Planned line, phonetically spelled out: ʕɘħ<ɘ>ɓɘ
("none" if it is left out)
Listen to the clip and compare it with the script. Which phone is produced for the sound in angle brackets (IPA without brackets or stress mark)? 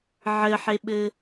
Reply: e